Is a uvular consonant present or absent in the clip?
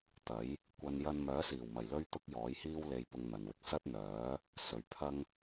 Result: absent